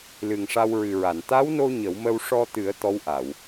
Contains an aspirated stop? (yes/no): no